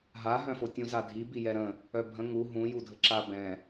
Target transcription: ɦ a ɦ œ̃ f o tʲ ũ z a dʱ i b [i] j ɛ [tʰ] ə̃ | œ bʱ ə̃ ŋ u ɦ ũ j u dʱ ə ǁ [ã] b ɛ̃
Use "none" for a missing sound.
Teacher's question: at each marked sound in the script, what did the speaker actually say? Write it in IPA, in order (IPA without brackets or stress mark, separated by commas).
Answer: i, ɾ, a